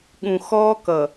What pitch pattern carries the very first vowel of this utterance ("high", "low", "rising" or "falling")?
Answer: low